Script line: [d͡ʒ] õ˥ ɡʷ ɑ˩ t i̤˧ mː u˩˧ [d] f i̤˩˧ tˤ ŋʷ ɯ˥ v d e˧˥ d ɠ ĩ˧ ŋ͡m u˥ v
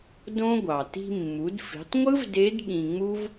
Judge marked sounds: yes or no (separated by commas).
no, yes